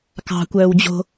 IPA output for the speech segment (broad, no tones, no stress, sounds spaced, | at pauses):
k ɑ̤ kʷ œː w d͡ʑ o̤